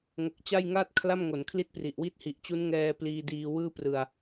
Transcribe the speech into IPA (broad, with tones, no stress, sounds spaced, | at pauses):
ŋ o˨˩ k̚ t͡ɕ a˥˩ j ŋ aː˥˩ t̚ kʰ l a˥˩ m ŋ o˩˦ n kʰ l i˥˩ t̚ p r i˨˩ ʔ w iː˥˩ t̚ h i˨˩ ʔ t͡ɕ u˦˥ n ŋ ɛː˧ p l iː˧ d iː˧ w ɯː˥˩ p r ɯ˧ a̯